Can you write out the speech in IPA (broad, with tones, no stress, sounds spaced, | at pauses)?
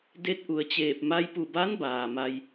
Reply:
d e˧˥ t̚ ʔ u˩ ə̯ t͡ɕ eː˧˩ p̚ m a˧ j p u˧˩ b a˧˥ n b aː˩ m a˧ j